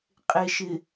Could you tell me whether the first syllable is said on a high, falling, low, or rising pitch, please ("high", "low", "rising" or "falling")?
low